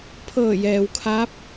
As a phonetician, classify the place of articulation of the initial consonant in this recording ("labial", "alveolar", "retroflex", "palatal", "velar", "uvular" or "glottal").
labial